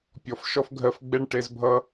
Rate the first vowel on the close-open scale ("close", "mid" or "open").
mid